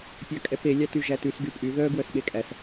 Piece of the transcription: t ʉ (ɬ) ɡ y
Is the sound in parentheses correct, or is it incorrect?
incorrect